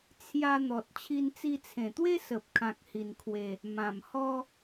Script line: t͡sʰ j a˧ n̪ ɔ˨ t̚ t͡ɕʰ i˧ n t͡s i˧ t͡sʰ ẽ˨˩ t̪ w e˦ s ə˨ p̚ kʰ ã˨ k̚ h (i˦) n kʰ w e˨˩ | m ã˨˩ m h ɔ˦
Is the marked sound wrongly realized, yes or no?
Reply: yes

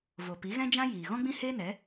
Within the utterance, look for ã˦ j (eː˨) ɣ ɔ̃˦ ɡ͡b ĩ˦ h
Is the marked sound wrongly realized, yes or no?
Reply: yes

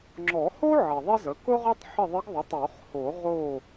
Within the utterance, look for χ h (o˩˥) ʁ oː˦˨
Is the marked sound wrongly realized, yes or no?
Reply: yes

